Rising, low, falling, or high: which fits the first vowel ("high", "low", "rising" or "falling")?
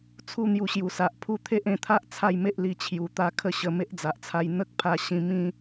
falling